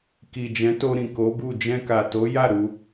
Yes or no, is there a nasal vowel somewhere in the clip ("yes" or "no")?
yes